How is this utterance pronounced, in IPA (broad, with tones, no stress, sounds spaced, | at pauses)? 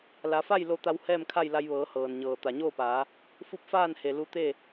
l a˩˧ f a˥˨ j l o˧ t̪ a˧ w h ɛː˥˨ m kʰ a˥˨ j l a˧ j ʋ ɤː˩˧ h ɤː˩ n ɲ ɤː˩ t̪ a˩ ɲ oː˥˨ p aː˩˧ | f u˧˥ p̚ f aː˥˨ n h e˩ l u˧ t̪ e˥˨